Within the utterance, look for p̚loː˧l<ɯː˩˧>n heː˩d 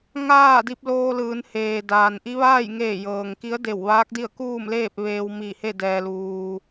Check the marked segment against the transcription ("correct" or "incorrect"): correct